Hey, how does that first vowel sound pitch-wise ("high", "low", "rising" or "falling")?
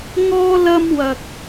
high